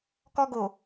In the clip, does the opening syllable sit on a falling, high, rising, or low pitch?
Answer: high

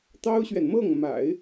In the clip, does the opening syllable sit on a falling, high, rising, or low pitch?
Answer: high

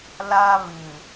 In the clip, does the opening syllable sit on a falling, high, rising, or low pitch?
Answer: high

